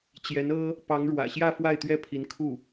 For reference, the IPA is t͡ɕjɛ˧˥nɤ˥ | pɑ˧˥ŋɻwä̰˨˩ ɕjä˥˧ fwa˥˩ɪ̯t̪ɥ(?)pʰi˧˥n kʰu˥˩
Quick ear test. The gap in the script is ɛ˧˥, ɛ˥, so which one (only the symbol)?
ɛ˥